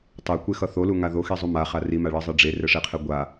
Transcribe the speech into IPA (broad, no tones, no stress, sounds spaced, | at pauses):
tˤ e kʷ e x ʌ θ o l u ŋ a ð o x i zˤ u m a χ a r i m a ɭ ʌ zˤ e ɖ͡ʐ e r ɛ ʂ e qʰ ɛ ɡʷ a